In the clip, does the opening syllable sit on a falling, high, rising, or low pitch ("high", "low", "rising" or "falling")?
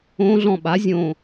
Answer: rising